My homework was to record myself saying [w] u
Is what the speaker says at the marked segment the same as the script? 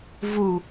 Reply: no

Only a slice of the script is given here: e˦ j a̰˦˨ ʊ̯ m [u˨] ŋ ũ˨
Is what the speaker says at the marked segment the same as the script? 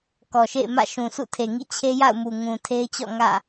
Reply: yes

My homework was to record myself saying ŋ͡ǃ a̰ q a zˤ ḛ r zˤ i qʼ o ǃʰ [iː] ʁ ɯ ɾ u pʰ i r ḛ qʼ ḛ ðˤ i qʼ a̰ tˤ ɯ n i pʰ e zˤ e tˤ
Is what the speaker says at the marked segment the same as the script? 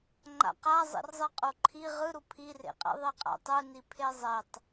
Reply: no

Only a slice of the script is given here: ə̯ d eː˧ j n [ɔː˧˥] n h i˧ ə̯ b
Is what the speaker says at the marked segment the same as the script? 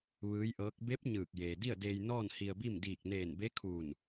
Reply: no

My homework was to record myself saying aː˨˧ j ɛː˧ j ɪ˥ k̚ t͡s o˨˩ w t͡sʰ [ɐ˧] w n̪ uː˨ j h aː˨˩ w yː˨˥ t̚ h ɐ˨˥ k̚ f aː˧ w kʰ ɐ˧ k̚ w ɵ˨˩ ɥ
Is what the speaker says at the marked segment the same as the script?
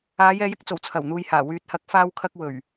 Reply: no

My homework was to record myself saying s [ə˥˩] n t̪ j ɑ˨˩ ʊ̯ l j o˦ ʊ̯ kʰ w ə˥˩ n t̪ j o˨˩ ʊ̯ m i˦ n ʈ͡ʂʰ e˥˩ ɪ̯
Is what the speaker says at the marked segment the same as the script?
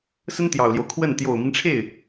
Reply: no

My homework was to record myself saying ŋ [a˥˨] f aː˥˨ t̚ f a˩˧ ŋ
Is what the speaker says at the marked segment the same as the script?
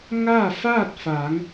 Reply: yes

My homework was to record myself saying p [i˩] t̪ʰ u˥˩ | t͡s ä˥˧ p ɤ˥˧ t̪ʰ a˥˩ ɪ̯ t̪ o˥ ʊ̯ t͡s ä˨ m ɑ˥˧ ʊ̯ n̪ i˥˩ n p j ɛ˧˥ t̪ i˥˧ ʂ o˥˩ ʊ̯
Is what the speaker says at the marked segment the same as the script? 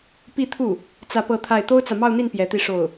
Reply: no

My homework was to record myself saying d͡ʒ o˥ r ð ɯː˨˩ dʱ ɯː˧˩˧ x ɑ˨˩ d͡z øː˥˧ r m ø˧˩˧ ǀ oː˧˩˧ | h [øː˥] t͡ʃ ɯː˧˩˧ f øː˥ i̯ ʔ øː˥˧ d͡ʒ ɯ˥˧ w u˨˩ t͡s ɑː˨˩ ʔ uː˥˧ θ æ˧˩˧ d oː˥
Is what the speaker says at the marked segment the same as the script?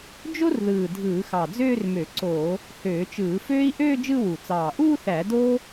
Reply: no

